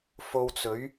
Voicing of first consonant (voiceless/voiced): voiceless